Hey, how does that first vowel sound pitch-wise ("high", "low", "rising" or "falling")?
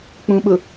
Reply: low